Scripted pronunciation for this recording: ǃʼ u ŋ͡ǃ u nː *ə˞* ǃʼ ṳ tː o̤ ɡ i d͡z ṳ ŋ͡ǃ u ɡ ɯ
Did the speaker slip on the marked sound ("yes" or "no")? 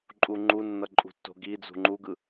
yes